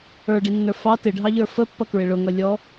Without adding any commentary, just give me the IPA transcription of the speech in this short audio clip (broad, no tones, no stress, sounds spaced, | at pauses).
ə˞ ɖ i nː ə˞ f ɑ t ɪ ɖʱ ɑ ʎ ə˞ f ə pː ʌ k ɹ ɪ ɭ ʊ ŋ ʌ lʲ ɔ